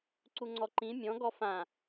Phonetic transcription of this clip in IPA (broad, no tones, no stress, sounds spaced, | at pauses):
ǀ u ŋ͡ǀ ɔ ǃ ĩ mʲ ɔ̃ ɡ ɔ f ã